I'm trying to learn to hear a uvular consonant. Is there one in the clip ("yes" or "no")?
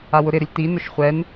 yes